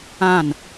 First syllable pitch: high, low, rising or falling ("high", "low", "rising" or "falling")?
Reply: falling